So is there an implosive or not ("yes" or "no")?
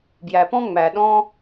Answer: yes